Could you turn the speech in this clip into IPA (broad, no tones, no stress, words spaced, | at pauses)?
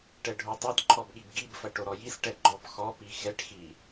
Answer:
ʈɛɖʱotˤɐd ǃʰɔbɠibɡibfɐ ʈoɾɔjis ʈɛɡ͡ǃɔbxɔ pixɛʈxi